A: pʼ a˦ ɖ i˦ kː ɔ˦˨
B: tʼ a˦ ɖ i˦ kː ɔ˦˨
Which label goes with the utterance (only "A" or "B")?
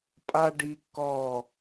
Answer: A